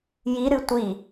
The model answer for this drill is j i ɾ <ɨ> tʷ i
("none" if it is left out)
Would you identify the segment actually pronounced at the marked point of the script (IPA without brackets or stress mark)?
ɨ